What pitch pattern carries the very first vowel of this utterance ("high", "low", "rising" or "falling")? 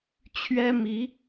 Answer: high